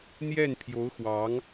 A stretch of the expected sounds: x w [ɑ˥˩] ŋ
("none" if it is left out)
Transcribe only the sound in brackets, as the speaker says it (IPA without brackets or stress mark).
ɑ˧˥